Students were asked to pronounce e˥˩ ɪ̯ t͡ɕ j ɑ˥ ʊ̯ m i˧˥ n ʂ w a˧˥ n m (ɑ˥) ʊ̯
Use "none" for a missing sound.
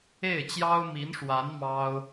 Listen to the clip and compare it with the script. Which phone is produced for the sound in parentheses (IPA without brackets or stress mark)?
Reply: ɑ˥